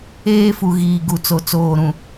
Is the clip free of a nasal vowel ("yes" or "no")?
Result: no